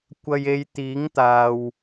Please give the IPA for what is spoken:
kʷ ɐ˨ j e˨ j t̪ iː˨˥ ŋ t̪ aː˨ w

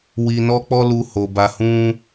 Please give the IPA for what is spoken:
w i˧ n ɔ˦ k͡p ɔ˦ l u˦ h o˧ b a˦ h ũ˦

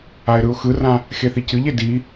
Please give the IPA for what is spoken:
a ɪ̯ ɾ ɯ ʊ̯ x ɯ r ã | x e θ i c ɨ ʎ e d i

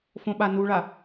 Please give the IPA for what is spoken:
f õ ɓ a n u ɭ a

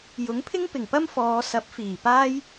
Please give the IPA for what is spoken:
j ʊ˨˥ ŋ pʰ ɪ˥ ŋ p ɪ˨˩ ŋ p ɐ˥ m f ɔː˨˧ s ɐ˨˥ p̚ f iː˨˩ p aː˥ j

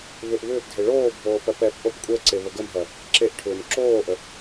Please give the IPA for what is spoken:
β ʏ ʔ β ʏː p dʱ e ɭ oː bʱ oː p ɜ p ɛ p ʔ o p kʷʼ ɛ ǀ e β ə ɡ ə m ɦ ɜ | ǁ e ʔ ʈʰ ʏː m ǁ oː ʔ ə

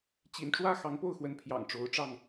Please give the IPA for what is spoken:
t͡ɕ ḭ˨˩ n ʈ͡ʂ w ä˦ x ɑ˨˦ ŋ p o˥˨ ʊ̯ x w ə˨˦ n pʰ j ɑ̰˨˩ ŋ ʈ͡ʂ o˨˦ ʊ̯ ʈ͡ʂ ɑ˥˨ ŋ

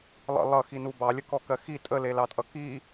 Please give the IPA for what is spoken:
lˠ ə̰ lˠ ʌ x i n u b ɑ lʲ ə k ɔ k ɜ x i tʼ ə l e l ɑ tʼ ʌ k i

